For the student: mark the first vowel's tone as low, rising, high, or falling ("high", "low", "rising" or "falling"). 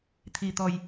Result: low